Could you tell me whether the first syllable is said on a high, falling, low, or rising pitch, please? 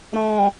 low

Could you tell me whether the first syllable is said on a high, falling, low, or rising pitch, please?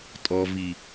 low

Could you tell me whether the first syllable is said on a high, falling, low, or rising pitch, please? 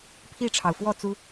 falling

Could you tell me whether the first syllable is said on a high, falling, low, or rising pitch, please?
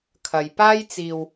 low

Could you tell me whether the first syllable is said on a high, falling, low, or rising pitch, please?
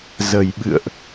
low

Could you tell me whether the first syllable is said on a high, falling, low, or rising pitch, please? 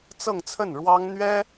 falling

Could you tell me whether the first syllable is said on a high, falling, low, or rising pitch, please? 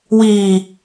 low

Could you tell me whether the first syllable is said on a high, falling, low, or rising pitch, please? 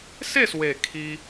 falling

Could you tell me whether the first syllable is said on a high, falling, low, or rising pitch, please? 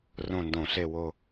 falling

